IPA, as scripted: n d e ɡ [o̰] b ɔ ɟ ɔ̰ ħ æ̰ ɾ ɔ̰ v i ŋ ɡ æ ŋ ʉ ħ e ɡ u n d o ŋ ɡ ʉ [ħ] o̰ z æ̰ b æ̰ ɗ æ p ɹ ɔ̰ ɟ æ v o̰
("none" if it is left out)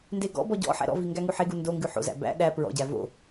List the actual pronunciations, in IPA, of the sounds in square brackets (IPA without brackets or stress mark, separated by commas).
ɔ̰, ħ